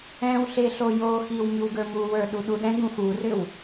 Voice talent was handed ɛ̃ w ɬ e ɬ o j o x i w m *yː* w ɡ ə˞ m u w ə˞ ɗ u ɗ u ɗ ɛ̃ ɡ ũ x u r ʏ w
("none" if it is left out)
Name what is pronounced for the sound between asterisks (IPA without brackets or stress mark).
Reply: y